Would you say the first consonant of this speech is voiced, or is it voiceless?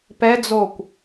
voiceless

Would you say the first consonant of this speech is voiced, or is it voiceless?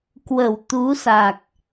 voiceless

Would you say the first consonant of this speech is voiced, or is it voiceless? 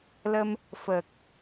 voiced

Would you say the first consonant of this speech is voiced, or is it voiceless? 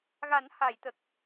voiced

